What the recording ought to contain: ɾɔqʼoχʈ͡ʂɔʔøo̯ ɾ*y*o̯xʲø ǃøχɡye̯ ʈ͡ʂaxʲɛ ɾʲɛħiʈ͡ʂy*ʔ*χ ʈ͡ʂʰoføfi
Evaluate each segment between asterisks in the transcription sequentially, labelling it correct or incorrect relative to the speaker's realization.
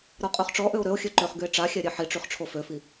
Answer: incorrect: ø, incorrect: none

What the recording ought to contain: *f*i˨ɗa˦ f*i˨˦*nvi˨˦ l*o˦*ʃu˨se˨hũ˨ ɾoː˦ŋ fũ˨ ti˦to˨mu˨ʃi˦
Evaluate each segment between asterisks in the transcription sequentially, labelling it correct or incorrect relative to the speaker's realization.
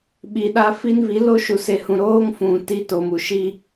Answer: incorrect: ɓ, incorrect: i˦, correct

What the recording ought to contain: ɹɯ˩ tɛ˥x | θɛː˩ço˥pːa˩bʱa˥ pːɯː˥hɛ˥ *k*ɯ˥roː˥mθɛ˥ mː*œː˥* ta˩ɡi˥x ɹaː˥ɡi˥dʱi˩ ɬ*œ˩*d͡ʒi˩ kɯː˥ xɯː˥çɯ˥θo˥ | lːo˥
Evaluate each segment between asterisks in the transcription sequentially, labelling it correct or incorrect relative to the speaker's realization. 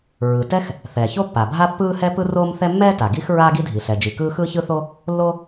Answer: incorrect: p, incorrect: ɛː˥, incorrect: ɛ˩

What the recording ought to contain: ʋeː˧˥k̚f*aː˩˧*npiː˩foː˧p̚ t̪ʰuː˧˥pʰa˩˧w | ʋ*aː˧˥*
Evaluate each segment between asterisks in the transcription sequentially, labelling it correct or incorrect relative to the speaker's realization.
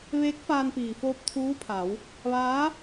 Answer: incorrect: aː˧, correct

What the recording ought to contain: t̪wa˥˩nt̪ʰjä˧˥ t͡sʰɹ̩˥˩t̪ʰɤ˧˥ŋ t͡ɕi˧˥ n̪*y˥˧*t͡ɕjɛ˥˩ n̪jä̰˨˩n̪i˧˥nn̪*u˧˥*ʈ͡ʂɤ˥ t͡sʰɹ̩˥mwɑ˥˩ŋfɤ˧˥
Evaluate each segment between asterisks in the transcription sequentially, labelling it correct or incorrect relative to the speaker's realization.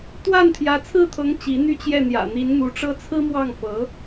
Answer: correct, correct

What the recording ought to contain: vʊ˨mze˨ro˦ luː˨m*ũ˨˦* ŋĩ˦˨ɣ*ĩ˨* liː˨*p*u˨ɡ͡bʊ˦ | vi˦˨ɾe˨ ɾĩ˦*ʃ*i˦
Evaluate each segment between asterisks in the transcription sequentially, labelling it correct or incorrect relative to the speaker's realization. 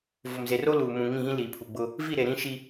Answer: incorrect: ũ˨, incorrect: ĩ˦, incorrect: pʰ, correct

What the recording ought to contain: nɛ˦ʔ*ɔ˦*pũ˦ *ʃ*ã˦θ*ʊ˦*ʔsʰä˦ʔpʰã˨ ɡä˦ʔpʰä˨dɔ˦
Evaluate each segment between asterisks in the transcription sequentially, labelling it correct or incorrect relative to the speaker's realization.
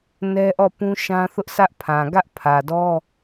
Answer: incorrect: ɔ˦˨, correct, correct

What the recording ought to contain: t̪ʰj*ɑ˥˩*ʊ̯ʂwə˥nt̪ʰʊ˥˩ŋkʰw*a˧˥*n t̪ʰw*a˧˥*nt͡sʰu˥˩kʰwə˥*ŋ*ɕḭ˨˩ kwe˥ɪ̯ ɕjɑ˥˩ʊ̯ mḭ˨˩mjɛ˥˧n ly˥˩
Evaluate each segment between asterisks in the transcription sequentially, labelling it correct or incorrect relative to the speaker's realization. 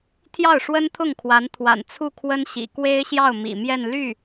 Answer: correct, correct, incorrect: a̰˨˩, incorrect: n

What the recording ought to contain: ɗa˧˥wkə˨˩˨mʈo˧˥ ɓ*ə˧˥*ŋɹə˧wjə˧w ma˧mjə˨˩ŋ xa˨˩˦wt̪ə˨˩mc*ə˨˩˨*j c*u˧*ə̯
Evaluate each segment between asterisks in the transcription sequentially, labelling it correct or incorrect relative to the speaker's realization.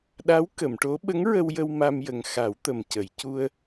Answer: correct, correct, correct

